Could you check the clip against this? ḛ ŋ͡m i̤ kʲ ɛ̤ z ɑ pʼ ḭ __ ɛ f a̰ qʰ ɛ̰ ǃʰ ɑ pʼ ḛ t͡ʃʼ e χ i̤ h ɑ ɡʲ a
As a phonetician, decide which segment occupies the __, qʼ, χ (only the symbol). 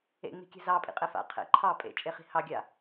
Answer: qʼ